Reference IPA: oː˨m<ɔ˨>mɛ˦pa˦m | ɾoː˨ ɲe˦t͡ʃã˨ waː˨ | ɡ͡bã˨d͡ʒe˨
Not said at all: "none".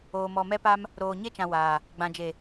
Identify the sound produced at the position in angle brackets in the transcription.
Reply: ɔ˨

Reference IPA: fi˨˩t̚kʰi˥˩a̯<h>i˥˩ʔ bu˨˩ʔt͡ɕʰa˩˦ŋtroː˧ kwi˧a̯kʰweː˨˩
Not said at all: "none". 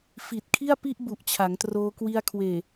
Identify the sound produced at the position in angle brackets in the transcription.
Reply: p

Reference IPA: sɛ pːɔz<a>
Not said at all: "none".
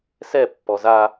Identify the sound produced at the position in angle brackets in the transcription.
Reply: a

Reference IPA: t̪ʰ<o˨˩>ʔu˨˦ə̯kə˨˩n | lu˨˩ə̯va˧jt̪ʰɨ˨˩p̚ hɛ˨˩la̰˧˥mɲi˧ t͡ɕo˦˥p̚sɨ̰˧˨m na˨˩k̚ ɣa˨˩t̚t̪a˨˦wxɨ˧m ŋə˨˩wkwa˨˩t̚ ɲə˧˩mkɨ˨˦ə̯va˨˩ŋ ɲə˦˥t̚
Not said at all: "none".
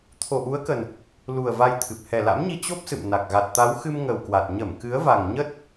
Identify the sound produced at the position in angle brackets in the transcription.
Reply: o˨˩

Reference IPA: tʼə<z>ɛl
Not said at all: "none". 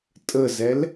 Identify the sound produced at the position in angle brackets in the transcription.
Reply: z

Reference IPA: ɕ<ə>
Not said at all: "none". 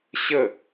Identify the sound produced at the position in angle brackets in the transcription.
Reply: ə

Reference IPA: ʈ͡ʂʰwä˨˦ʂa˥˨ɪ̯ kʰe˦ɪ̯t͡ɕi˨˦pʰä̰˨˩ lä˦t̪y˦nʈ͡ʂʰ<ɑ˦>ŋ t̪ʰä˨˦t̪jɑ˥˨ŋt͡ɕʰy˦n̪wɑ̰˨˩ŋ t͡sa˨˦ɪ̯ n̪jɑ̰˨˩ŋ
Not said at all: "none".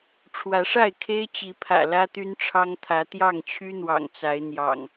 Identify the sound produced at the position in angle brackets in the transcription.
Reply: ɑ˦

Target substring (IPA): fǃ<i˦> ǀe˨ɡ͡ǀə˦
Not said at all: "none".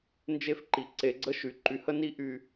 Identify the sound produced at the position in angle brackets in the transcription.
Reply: i˨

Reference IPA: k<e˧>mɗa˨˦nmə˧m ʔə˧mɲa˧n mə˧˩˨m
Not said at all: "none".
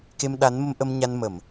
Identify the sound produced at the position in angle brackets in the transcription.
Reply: e˧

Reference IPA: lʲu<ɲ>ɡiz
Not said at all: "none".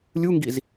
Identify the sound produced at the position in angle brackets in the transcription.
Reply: ŋ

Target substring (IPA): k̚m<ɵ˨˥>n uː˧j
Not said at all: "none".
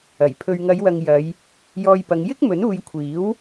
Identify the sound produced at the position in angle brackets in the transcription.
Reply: ɵ˨˥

